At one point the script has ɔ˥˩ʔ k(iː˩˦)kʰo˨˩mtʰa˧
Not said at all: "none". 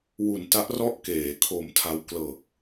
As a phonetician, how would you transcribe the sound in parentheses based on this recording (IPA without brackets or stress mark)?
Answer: eː˩˦